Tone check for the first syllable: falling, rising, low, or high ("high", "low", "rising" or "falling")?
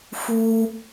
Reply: high